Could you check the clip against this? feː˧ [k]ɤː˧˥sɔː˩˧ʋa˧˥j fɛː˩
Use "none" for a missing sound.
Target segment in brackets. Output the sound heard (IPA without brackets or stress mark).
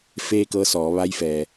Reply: k